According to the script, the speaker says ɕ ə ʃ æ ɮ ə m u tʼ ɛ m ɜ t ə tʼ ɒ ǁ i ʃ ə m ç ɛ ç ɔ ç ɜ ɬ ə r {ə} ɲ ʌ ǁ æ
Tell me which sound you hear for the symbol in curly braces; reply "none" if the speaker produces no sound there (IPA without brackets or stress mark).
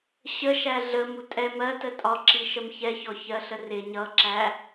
ɪ